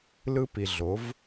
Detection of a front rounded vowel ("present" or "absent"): absent